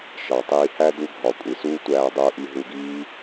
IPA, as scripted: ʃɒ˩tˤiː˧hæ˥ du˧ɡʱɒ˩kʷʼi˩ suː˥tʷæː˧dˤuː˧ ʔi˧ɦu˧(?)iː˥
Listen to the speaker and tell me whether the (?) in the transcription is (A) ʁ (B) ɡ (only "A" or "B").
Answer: B